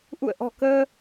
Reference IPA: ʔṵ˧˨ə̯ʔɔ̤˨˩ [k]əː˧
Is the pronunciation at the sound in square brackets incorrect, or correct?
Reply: correct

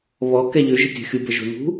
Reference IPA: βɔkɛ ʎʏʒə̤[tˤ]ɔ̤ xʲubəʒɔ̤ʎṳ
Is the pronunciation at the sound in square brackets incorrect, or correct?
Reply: incorrect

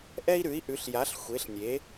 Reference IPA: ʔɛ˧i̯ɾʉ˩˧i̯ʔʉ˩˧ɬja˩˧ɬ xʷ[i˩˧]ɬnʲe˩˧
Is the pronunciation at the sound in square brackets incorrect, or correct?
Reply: incorrect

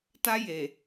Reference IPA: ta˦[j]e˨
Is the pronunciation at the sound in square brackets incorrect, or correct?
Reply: correct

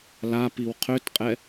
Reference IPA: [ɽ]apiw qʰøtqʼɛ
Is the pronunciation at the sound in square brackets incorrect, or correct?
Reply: incorrect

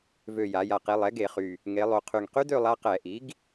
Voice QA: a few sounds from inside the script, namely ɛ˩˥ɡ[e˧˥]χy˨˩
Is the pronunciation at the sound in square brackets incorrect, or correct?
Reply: incorrect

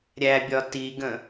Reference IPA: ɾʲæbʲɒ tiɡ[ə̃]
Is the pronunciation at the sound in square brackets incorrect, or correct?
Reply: correct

